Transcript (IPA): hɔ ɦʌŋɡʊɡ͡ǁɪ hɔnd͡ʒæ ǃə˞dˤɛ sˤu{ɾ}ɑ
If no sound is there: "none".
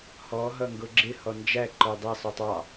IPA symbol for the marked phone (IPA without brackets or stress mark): tˤ